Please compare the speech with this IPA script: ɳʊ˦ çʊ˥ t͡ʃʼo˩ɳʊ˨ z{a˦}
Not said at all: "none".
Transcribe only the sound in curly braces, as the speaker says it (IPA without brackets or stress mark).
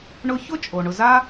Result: a˦